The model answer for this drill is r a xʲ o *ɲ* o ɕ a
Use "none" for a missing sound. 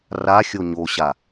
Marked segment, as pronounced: ɲ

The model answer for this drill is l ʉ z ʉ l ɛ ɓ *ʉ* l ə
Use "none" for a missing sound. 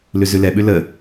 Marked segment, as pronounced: ʉ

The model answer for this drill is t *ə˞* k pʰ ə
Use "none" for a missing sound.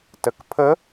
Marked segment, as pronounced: ə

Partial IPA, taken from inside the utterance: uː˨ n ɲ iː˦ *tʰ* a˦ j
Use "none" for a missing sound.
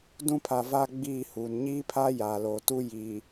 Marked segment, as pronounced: pʰ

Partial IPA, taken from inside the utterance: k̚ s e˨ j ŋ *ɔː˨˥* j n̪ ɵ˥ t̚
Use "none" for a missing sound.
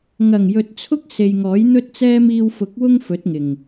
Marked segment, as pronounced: ɔː˨˥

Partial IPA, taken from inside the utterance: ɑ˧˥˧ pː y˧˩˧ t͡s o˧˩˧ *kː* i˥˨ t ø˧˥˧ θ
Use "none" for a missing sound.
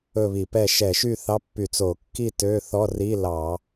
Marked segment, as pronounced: kː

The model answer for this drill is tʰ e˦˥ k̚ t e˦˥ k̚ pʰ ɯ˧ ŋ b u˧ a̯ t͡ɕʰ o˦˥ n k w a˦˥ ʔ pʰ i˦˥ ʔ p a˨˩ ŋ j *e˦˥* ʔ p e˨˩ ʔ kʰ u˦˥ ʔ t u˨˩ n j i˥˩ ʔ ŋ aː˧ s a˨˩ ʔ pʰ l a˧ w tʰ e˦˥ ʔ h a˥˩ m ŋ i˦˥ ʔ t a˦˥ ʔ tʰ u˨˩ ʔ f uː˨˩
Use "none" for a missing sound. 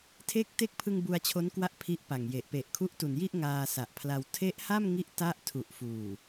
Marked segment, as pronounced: e˨˩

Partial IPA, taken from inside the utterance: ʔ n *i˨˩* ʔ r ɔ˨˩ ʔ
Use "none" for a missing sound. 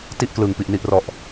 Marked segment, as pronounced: i˨˩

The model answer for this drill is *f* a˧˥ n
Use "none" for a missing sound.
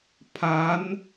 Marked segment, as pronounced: pʰ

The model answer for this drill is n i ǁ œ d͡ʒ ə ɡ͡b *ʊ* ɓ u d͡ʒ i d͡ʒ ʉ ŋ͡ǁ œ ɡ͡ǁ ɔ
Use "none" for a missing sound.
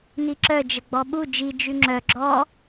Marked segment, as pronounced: ɔ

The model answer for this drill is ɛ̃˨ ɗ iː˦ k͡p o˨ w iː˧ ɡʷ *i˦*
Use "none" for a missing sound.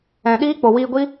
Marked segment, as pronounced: i˦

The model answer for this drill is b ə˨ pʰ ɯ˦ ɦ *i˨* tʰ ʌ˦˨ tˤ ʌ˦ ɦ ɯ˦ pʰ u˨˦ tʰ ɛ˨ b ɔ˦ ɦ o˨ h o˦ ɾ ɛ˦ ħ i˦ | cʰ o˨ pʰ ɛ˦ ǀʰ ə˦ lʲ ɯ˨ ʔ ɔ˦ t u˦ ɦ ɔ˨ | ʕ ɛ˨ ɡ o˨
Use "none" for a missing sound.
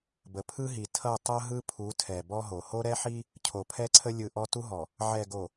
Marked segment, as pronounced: i˨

